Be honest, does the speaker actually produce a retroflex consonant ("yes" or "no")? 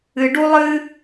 yes